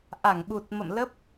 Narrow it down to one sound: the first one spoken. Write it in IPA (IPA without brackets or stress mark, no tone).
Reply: ʔ